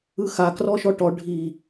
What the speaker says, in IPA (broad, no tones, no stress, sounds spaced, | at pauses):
ɯ x a k r ɔ ʃ ɔ ʈ ɔ ɖʱ i